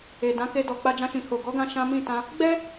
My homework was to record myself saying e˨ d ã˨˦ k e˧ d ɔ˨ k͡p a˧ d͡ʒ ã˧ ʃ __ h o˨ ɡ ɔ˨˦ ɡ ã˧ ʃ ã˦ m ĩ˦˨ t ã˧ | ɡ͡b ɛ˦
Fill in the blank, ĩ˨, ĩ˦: ĩ˨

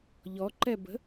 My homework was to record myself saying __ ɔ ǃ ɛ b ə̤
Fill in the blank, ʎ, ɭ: ʎ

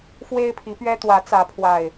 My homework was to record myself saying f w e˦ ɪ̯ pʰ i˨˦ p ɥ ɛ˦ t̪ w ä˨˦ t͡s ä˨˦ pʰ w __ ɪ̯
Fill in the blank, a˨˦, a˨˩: a˨˩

